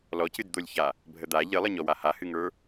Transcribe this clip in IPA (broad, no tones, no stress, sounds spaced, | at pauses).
l ɔ c ɨ d d̪ o lʲ ç a | bʱ ə d̪ a ʎ ɨ lˠ ə ɲ ɔ w a h a h ɨ ŋ ə˞